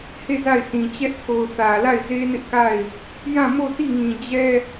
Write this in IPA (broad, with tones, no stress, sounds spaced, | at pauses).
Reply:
h e˦˨ z a˦˨ ɪ̯ sʰ ĩ˨ t͡ɕ ɛ˦ ʔ tʰ o˨ ʊ̯ θ ä˨ l a˦˨ ɪ̯ z e˦ n ɪ˦ ʔ k a˦˨ ɪ̯ | j ã˦˨ m o˦˨ t i˦˨ ŋ ĩ˨ d͡ʑ ɛ˦